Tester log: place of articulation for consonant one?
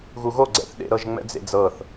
velar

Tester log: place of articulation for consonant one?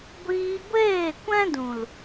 velar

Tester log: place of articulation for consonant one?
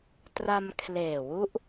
alveolar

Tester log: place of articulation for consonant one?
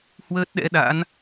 glottal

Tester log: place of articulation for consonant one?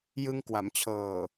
palatal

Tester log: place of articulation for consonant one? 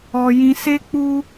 palatal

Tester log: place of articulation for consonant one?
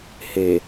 glottal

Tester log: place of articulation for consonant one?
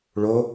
retroflex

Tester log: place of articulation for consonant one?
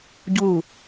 palatal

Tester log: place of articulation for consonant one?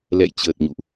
alveolar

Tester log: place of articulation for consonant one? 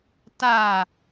alveolar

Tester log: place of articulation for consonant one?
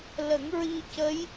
alveolar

